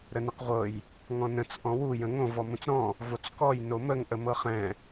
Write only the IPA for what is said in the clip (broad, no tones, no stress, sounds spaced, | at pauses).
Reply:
ɾ ə n ə q ʁʷ ɤ j | ŋ ɔ̃ n ə̃ t͡s ʔ ɔ̃ w u j ə̃ ŋ õ v ɔ m ũ t͡s ɾ ɔ̃ | v o t͡s k ɔ j n o m ə ŋ ʔ ə m ɤ χ ɛ̃